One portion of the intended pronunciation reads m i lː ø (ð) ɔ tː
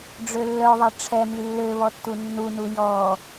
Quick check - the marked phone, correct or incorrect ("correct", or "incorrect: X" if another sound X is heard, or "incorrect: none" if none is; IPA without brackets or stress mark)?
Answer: incorrect: β